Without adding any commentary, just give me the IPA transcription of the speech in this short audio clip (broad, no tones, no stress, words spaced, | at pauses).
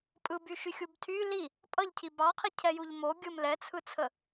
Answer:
pʼɯbyʃyxʲub tʰy li | pʼʌʎcʰi bɑqʰicʰɛjuʎ mo ɡʲɯm lɛt͡sʰɯt͡sʰə